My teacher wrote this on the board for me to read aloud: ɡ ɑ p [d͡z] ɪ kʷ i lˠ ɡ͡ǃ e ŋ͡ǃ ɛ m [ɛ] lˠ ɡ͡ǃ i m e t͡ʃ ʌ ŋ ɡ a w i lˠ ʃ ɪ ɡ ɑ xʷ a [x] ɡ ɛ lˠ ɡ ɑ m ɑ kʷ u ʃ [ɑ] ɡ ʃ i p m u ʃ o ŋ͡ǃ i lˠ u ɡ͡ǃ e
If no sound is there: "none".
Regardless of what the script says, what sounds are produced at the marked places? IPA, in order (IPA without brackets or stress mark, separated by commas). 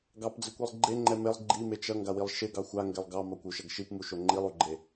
d͡z, e, ŋ, ʌ